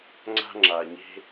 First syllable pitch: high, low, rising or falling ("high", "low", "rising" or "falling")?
high